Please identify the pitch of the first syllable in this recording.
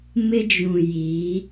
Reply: high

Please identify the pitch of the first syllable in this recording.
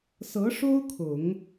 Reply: rising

